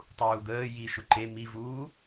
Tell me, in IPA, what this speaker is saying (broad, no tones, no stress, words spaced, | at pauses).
tˤuːd̪əː ji ʃʊǃe mivuː